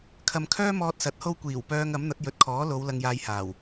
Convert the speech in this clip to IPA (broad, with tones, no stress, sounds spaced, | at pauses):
kʰ ɐ˨ m kʰ œː˥ m ɔː˧ t̚ s ɐ˨˥ t̚ h o˥ w kʷ iː˨˩ w p œː˧ ŋ ɐ˨˥ m n̪ ɐ˨˥ t̚ j ɵ˨˥ t̚ kʰ ɔː˨˥ l o˨˧ w l ɐ˧ ŋ j aː˧ j h aː˨˩ w